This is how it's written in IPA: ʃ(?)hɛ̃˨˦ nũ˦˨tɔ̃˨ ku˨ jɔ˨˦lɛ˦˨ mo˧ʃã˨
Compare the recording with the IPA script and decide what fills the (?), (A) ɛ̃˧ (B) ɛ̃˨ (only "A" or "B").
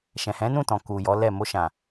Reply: B